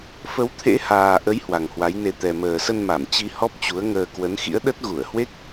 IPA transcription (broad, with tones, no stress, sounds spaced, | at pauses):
f ə˨˦ w t̪ʰ ḛ˧˥ h aː˨˩ ʔ ə˨˦ j h w a˨˩ ŋ h w a˨˦ j n e˧ t̪ ɛ˨˩ m əː˨˩ s ə˧ n m a˧˩ m t͡ɕ i˧ h ɔ˦˥ p̚ t͡ɕ u˨˦ ə̯ ŋ əː˧ k w ə˨˦ n x ḭ˧˥ ə̯ ɗ ə˦˥ t̚ ɣ u˧˩ ə̯ h w e˦˥ k̚